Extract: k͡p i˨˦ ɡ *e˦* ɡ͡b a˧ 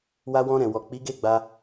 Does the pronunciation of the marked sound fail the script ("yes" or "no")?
yes